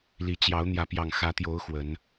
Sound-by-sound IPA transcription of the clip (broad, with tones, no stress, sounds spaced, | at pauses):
l i˨˦ t͡ɕ j ɑ˨˦ ʊ̯ n̪ j ä˨˦ p j ɑ˨˩ ŋ x ä˨˦ t̪ j o˨˦ ʊ̯ x w ə˨˦ n